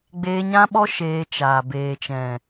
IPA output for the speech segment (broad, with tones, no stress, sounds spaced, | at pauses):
ɡ͡b eː˧ ɲ ã˦ ɓ ɔ˦ ʃ eː˧ t͡ʃ aː˨ b eː˨ t͡ʃ ɛ̃˨